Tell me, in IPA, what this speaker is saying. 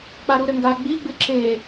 k͡p a ɾ u ɾ ɘ ŋ ɡ a ɡ͡b i ɡ͡b ɨ ǁ e

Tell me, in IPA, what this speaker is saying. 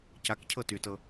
c a k cʰ ɤ t y t ɤ

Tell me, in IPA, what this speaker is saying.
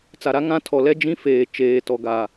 t͡s a˨ ɾ a˦ ŋ ã˦ tʰ ɔ˨ l ɛ˦ d͡ʒ ĩ˦ f eː˨ t͡ʃ eː˨ t ɔ˨ ɡ aː˨

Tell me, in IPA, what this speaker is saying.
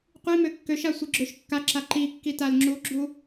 qʷ i m ø kː ø ʃ a sʷ i ɡ͡ǁ ø ʃ kː a ǁ a ǃ i kː i t a l ŋ͡ǁ u ɡ͡ǁ u

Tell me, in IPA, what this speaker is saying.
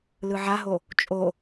l ɯ ʕ a ɦ o | t͡ʃʼ o

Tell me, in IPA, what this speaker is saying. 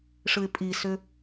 ʂ ɯ ɪ̯ pʼ i s ʏ

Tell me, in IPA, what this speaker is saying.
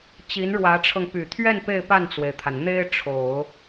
t͡ɕ i˧˥ n ɻ w ä˧˥ ʈ͡ʂʰ ɤ˧ ŋ p y˨˩ t̪ʰ ɥ ɛ˥˧ n p e˥˧ ɪ̯ p a˥˩ n t͡s w e˩ ɪ̯ t̪ʰ a˩ n n̪ e˥ ɪ̯ ʈ͡ʂʰ o˨˩˦ ʊ̯

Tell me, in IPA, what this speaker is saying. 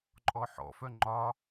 ǃʼ ɔ ħ ɔ̰ f œ ŋ͡ǃ ɒ

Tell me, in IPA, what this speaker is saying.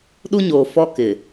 ɗ u˦ ɲ oː˨ f ɔ˦ k ɪ˨

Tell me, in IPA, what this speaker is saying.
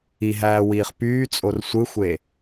i ɦ æː w iː χ p yː t͡sʼ o r sʷ ɯ xʷ e

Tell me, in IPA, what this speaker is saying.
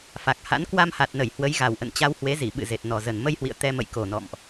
f a˨˩ k̚ h a̰˧˥ n k w a˧ m h a˨˩ t̚ n ə˧˩ j h w ə˨˦ j ɣ a˨˩ w ʔ ə̰˧˨ n t͡ɕ a˧ w h w e˨˦ z i˧˩ ɓ ɨ̰˧˨ z e˨˩ t̚ n ɔ˨˩ z ə˨˩ n m ə˧ j h w ḭ˧˨ ə̯ t̪ ɛ˧ m ə̰˧˨ j k o˨˩ n ɔ̰˧˨ m ʔ

